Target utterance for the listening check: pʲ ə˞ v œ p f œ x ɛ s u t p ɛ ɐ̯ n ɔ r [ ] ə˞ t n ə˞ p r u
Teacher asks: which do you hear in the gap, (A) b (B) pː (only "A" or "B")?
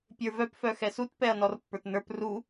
B